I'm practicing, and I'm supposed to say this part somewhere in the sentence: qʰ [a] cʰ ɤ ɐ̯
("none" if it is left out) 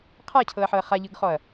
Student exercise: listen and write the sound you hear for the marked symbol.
a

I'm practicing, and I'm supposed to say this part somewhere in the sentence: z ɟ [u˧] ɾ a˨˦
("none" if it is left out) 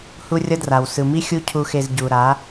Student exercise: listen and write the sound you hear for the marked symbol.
u˨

